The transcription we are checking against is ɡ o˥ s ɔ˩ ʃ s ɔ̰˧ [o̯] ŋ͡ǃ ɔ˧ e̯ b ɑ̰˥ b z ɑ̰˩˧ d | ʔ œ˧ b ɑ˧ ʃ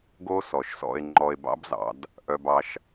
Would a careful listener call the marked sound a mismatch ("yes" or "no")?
yes